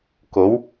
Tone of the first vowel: rising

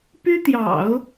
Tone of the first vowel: high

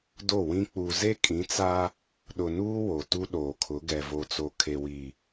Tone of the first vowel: falling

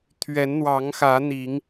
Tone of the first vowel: rising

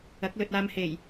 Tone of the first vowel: rising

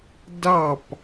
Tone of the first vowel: falling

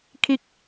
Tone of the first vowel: falling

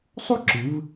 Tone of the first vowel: falling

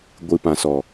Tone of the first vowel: low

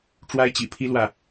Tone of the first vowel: high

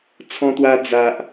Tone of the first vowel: high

